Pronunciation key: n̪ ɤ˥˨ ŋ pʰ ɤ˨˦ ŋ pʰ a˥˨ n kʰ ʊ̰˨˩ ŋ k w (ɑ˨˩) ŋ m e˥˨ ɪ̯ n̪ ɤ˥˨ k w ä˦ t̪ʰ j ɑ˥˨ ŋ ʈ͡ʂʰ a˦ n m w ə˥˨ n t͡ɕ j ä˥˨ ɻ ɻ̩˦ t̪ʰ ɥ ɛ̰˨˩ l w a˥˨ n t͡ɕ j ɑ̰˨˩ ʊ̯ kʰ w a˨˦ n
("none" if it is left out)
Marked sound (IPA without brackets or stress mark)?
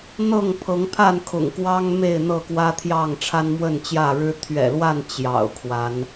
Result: ɑ˦